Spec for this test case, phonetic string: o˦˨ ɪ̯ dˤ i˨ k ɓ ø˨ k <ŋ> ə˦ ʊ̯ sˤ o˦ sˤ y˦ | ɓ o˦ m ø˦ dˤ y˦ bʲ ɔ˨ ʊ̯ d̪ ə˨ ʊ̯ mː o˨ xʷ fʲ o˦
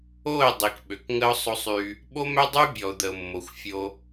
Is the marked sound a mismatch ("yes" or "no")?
no